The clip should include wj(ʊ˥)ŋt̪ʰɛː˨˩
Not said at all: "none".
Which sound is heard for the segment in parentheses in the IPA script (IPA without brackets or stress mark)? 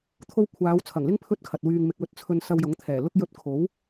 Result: ʊ˨˥